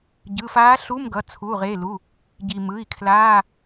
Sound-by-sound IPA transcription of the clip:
ɟ ɯ˩˧˩ f aː˧˥ ɬ u˧˥˧ m ɡ ʌ˩˧˩ t͡sʰ uː˩˧˩ ʁ e˩˧˩ l u˩˧˩ | ɟ i˩ m ɯ˩˧˩ i̯ kʰ l aː˧˥˧

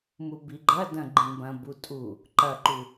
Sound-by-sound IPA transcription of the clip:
m u b i ɡ͡ǃ ɐ d ɐ̃ ɡ͡ǃ ĩ b ɐ̃ b u tʼ u | ǃ ɐ ǃ u

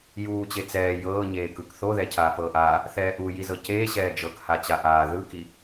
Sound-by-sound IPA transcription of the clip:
j uː t͡ɕ e t͡s ɛː j ɤː ɲ eː k ɯ k θ o ð ɛ cʰ aː f ɤː ʔ aː | θ ɛː ʔ u j i z ɤ c eː ɕ ɛː d͡ʒ ɤ k h a t͡ɕ a ʔ aː ð ɯ k i

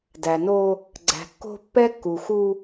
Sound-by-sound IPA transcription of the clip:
d æ˨ n o˦ | ɡ͡ǀ æ̤˨ kː o̤˦ pː ɛ˦ kː u˨ x u˦

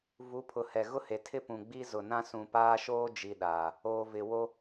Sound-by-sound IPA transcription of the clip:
v u˨˦ pʰ ʊ˨ h ɛ˨ ɣ ʊ˦ h e˨ tʰ ɪ˦ p ũ˨ ɡ͡b i˦ z ʊ˨ n ã˦ s ũ˨ p aː˦ ʃ oː˦ d͡ʒ i˨ ɗ a˨ | oː˨ v ɪ˨ w o˦

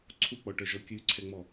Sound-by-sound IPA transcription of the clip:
ǀʰ u k͡p ɔ ʈ œ ʒ ɔ kʲ ʉ ǀʰ ɛ ŋ͡m ɔ

